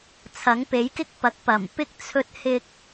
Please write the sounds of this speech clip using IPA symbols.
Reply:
t͡sʰ ɐ˨˥ ŋ p e˨˥ j k ɪ˥ k̚ p ɐ˨˥ k̚ p ɐ˨˩ m p ɪ˥ k̚ t͡sʰ ɵ˧ t̚ h ɪ˧ k̚

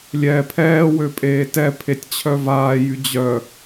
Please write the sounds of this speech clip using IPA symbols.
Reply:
lʲ ɛː pʰ ɛː w ø pʼ eː t ɛ pʰ e tʲ t͡ɕʰ œ v aː j y d͡ʑ œ

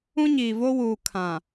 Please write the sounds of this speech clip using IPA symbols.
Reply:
ũ˦ ɲ iː˨ v o˦ w uː˨ kʰ ã˨

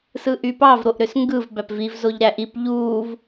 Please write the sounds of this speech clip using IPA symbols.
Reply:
s ɯ ʔ y p ɑ v ɾ o ʔ ɾ ø s ŋ ɡ ɯ v b æ p v i v z o ʎ ɾ æ ʔ i p ʎ uː v

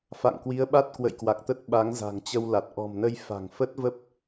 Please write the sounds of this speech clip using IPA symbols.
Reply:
f a̰˧˨ ŋ k w i˨˦ ə̯ ɓ a˦˥ t̚ k w ə̰˧˨ j k w a˨˩ k̚ t̪ ə˦˥ t̚ ɓ a˨˦ ŋ z a̤˨˩ ŋ t͡ɕ ə˧ w l a˨˩ t̚ ʔ ɔ̤˨˩ m n ə˧ j f a̤˨˩ ŋ f ə˦˥ t̚ v ə˦˥ p̚

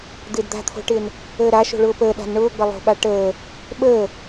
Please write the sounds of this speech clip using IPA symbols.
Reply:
d̪ ɪː d d̪ a̤ t̪ʰ o̤ ʈ ɪː n | əː ɾ a ʃ o̤ ɭ ʊː p əː ɗ a̤ n ɳ ʊː ɡ͡b ə lˠ o̤ ɓ a ʈ əː | ɓ əː

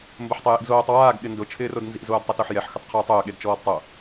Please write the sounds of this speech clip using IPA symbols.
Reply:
m b ʊ ħ tˤ e j ḭ ɡ z oː tˤ w aː ɡ ɠ ɪ n d ʊ t͡ʃʰ ɪː r o d n z ḭ z oː d tˤ ʊ t o ħ j ɛ ħ x ʊ tˤ qʰ uː tˤ ʊː ɠ e d t͡ʃ ɔː d tˤ o

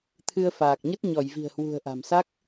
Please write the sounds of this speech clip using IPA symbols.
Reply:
t̪ʰ ɨ˧ ə̯ f aː˨˩ k̚ ɲ ə˦˥ t̚ ɲ ɔ˧˩ j v i̤˨˩ ə̯ h w ṳ˨˩ ə̯ ʔ a̤˨˩ m s a˦˥ k̚

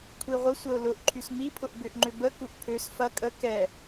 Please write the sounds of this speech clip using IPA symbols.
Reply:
kʷʰ i ʁʷ ə sʷ ə ʊ̯ l ʊ ʔ ǃʰ y s m i pʰ ʊ ʔ b ʏ ʔ ŋ͡ǃ ʏ b ə k u ʔ pʰ ø s f ɐ kʼ ə k ɛ

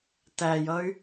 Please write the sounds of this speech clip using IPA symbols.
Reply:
t æ j ʌ y̯

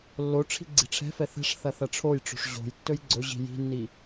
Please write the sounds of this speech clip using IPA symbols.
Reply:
lː o ʈ͡ʂʰ i̤ ɡ͡ǀ i̤ ʈ͡ʂʰ ɛ̤ f ɛ θ ɛ̤ ʂ θ ɐ θ ɐ ʈ͡ʂʰ o j ʈ͡ʂ o̤ ʂ ʑ o̤ j tː ɵ j ɡ͡ǀ ɵ ʑ i̤ j i̤ nː i

